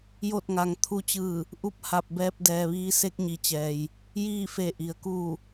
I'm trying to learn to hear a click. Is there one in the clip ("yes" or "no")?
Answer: no